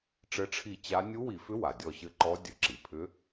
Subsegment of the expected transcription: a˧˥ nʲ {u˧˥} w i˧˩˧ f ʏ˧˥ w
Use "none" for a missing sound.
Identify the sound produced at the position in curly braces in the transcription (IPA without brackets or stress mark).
u˧˥